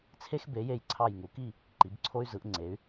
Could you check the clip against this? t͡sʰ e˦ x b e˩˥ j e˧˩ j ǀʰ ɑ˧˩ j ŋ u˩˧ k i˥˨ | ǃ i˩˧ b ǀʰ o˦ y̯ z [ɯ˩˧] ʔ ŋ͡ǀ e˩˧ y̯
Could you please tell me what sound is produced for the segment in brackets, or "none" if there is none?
ɯ˩˧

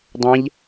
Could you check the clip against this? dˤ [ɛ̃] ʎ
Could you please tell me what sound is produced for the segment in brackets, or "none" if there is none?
ɛ̃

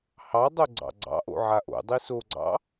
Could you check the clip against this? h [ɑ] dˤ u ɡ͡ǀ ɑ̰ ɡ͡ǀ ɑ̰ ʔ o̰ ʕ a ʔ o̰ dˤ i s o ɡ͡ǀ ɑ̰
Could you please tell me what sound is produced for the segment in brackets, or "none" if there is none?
ɑ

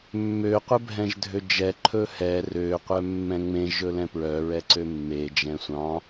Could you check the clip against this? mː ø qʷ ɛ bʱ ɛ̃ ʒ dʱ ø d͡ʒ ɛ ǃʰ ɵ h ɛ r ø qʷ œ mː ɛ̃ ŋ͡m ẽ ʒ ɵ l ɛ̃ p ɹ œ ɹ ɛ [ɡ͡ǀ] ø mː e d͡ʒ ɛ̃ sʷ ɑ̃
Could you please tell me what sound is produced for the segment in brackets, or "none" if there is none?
ǀ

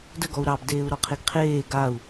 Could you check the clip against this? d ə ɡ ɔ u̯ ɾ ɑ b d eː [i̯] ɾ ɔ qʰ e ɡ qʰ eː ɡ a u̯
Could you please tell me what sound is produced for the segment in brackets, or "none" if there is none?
u̯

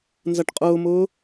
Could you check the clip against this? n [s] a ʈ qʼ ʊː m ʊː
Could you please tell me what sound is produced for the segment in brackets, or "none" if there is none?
z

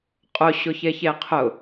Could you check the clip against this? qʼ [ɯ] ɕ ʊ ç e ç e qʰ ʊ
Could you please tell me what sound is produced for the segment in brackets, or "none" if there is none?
ʊ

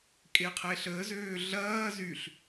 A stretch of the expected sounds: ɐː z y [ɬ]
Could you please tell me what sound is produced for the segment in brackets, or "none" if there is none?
ɬ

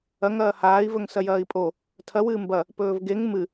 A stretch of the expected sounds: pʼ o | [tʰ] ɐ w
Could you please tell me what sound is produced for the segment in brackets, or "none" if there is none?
tʰ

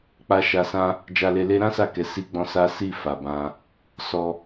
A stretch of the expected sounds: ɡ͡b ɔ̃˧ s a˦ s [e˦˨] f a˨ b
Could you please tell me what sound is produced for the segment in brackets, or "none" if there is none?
i˦˨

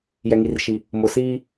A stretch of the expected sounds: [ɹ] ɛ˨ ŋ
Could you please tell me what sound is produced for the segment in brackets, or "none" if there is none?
j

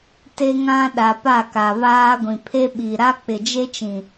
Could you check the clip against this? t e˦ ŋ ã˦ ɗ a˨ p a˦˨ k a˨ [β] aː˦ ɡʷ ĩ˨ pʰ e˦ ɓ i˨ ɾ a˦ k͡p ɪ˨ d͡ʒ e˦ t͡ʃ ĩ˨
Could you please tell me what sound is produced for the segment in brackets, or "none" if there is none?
β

